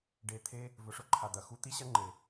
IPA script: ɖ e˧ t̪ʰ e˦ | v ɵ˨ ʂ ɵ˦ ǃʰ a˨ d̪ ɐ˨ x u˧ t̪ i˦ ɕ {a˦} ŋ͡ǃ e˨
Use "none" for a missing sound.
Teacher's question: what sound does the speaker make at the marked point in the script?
ɐ˦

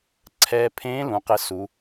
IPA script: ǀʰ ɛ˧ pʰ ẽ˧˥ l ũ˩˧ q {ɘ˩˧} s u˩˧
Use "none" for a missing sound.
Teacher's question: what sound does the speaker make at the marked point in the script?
ɘ˧˥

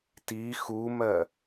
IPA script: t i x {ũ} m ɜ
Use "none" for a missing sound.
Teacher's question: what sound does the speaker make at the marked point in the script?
u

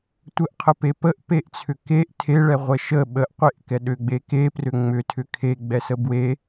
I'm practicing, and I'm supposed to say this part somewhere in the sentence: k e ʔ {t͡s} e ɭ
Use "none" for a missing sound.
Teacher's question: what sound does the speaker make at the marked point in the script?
tʰ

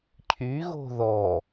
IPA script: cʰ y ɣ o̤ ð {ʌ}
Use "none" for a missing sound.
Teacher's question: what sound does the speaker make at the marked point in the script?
ɔ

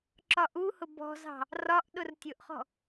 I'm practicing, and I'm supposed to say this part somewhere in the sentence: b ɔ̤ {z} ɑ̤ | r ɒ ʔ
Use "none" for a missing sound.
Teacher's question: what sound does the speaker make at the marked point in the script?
z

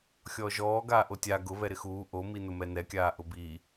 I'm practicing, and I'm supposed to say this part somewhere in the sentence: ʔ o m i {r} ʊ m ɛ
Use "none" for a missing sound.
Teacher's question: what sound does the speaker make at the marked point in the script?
n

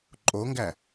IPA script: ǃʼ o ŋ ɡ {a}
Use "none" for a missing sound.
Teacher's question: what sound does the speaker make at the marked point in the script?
æ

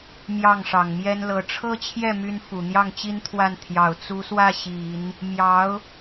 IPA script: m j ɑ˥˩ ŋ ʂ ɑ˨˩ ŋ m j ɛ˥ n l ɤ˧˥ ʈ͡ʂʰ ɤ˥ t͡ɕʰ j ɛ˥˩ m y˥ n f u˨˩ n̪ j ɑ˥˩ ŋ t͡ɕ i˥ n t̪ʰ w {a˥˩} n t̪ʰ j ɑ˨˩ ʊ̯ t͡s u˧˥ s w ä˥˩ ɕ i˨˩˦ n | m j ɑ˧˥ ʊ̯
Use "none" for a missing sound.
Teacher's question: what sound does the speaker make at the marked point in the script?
a˥˩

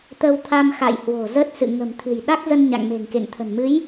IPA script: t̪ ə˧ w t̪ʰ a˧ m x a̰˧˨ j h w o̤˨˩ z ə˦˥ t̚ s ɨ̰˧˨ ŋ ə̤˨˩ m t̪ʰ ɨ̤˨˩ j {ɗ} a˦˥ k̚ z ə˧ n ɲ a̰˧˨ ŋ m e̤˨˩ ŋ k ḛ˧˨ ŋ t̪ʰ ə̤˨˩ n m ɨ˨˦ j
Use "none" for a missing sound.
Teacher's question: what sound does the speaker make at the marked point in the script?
ɗ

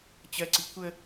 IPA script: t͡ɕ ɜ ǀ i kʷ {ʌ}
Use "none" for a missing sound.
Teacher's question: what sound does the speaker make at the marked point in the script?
ə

